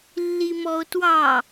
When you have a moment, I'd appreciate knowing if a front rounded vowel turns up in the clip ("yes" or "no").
no